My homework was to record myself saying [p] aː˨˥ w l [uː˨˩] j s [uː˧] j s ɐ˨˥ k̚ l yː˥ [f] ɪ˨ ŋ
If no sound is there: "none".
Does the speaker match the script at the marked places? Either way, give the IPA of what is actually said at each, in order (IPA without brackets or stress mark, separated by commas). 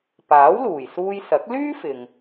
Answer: p, uː˨˩, uː˧, f